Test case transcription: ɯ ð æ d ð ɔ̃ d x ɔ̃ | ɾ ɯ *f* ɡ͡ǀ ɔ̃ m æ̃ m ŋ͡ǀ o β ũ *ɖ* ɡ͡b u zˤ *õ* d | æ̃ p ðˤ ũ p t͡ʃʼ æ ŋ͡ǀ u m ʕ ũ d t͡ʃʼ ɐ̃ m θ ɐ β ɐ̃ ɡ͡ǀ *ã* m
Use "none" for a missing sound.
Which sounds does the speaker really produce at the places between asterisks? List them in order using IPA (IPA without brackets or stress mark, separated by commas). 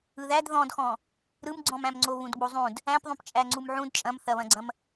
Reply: m, d, ũ, ɐ̃